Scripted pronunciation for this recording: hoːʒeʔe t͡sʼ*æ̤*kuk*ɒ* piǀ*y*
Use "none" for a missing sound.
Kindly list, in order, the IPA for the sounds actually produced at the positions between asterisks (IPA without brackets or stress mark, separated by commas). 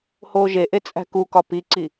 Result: æ̤, ɒ, i